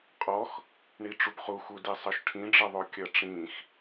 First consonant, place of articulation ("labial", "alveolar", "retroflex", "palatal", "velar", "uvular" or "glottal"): uvular